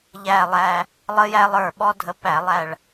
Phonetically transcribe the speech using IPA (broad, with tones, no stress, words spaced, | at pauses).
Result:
ʎæ˨˩lˠæ˨˩ | lˠə˧jæ˧lˠə˞˨˩ ɓɔ˥dʱə˧pæ˧˩˧ lˠæ˨˩ɭ